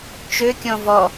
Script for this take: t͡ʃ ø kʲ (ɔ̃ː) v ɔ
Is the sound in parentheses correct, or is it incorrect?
incorrect